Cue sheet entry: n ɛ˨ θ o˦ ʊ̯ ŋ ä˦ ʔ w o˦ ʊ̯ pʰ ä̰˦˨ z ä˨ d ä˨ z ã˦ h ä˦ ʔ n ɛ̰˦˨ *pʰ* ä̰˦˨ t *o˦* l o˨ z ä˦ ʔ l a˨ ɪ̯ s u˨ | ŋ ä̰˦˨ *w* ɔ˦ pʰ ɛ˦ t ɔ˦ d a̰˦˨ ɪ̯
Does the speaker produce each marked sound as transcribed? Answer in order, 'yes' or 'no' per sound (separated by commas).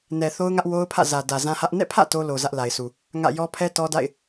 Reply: yes, yes, no